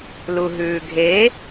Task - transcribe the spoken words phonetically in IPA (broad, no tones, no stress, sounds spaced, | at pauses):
l u ɦ ʉː ɡʱ e